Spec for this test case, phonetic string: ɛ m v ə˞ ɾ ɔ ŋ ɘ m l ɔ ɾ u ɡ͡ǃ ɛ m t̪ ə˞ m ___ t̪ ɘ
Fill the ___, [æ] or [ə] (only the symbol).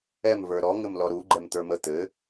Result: ə